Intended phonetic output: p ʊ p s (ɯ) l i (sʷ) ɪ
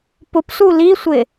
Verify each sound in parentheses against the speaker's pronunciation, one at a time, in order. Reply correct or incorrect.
incorrect: u, correct

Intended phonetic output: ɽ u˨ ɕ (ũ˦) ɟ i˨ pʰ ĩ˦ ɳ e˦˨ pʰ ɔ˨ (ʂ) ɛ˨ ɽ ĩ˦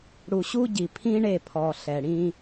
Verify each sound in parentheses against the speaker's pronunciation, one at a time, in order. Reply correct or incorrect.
incorrect: u˦, incorrect: ɬ

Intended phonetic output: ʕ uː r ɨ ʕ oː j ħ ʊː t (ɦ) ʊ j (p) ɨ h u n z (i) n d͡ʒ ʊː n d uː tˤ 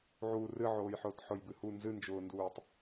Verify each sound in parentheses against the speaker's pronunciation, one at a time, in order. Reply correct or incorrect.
incorrect: ħ, incorrect: b, incorrect: ɨ

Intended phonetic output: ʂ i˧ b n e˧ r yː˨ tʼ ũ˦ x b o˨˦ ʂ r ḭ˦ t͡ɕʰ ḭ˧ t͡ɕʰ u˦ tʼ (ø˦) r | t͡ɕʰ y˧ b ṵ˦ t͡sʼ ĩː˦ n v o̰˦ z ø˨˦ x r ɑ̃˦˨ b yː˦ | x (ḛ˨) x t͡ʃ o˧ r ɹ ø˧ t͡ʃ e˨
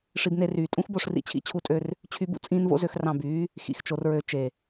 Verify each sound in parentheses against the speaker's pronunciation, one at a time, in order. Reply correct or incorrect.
correct, incorrect: ḭ˨

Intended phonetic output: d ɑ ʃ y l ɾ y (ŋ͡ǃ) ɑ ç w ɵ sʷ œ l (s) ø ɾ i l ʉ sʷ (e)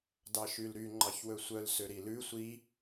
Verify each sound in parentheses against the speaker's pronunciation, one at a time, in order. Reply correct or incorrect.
correct, correct, incorrect: i

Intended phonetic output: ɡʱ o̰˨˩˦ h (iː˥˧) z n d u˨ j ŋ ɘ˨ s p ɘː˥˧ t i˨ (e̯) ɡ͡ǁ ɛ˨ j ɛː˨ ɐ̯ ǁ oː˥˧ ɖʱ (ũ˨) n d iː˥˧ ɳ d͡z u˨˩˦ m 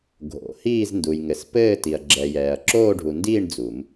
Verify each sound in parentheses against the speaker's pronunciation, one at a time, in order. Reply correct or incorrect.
correct, incorrect: ɐ̯, incorrect: u˨

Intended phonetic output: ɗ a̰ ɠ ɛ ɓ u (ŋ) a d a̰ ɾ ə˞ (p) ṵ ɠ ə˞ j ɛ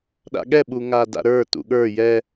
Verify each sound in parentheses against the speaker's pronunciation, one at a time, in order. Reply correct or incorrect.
correct, incorrect: t

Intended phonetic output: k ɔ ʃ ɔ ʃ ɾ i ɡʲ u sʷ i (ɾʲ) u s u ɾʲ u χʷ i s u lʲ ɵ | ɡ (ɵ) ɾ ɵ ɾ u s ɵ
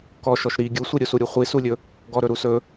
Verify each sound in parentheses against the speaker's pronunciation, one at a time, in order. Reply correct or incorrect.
correct, incorrect: ɔ

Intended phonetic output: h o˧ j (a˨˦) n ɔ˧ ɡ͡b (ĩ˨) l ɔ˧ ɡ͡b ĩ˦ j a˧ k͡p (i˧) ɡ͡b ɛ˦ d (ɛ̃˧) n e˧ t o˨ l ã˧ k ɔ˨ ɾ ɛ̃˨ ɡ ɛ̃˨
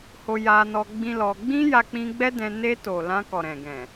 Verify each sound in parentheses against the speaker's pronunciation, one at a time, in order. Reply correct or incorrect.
incorrect: a˧, incorrect: ĩ˦, incorrect: ĩ˧, correct

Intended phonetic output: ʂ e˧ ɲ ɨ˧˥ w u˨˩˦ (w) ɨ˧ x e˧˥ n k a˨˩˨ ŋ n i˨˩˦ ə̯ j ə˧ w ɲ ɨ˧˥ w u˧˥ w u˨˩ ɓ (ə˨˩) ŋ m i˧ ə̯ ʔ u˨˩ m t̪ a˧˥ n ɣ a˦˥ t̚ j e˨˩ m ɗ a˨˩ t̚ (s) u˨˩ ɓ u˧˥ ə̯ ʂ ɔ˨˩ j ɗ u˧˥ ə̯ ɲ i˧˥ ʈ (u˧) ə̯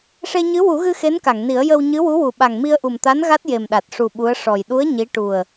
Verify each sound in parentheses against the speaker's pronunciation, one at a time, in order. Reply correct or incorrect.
incorrect: ɣ, incorrect: a˨˩, incorrect: ʂ, incorrect: u˨˩

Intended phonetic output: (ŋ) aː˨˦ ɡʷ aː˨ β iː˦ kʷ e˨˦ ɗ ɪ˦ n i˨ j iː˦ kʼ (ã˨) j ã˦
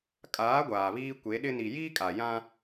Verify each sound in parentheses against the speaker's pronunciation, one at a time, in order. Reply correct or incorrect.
incorrect: kʼ, incorrect: a˨

